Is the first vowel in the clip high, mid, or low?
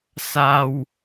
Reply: low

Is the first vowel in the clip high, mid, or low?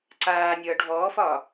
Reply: low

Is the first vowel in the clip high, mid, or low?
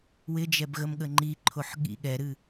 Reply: high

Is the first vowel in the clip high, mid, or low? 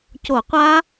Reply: mid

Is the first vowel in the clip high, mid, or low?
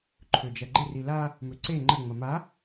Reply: mid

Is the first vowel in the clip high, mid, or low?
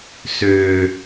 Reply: mid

